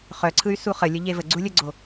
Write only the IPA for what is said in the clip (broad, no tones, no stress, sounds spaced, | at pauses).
χ œ ǀʰ ɯ y̯ s u χ ə lʲ ə ʎ e v ə ɡ͡ǀ u lʲ ə ɡ͡ǀ o